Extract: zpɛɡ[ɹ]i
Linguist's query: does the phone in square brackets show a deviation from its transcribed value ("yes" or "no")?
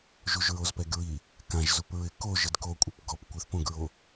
no